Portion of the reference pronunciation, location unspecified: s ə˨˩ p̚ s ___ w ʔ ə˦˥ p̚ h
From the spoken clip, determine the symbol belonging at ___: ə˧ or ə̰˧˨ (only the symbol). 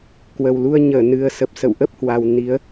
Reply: ə̰˧˨